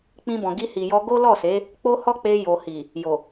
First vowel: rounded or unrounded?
unrounded